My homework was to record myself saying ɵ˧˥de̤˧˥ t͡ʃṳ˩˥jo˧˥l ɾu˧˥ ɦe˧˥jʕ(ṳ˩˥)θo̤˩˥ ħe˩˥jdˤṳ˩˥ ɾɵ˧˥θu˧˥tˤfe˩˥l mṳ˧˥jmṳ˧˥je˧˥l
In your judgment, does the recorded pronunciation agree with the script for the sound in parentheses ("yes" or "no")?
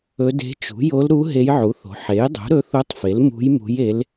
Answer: no